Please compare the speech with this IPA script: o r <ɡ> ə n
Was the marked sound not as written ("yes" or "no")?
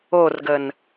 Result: no